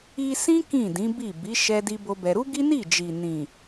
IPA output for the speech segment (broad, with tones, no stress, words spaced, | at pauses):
i˧ sĩ˦ kĩ˦˨dĩ˨˦bi˦˨ bi˨˦ ʃɛ˦di˦bo˦bɛ˧ ɾu˦ɡi˦ni˦˨d͡ʒi˨ nĩ˨